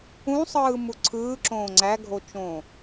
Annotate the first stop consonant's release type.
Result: click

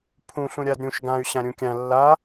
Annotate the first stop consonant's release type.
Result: aspirated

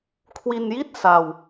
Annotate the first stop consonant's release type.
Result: aspirated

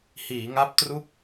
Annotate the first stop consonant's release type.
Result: plain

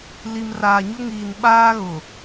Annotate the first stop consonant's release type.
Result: implosive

